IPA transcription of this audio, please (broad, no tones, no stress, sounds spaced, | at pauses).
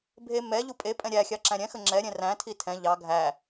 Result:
bʱ e m ɛ ʎ u pʼ e pʼ ɛ̃ ɾʲ æ xʲ ɑ ǁ æ̃ ɾʲ ɛ̃ x ə ŋ͡ǁ ɛ ɾʲ ɛ̃ r æ̃ tʰ i tʰ ɛ̃ ʎ ɑ ɡʱ æ